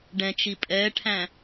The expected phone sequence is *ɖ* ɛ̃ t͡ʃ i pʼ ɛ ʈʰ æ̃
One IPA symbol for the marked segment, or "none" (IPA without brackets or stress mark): ɖ